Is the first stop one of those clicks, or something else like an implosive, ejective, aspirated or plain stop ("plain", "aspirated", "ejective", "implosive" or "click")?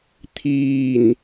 aspirated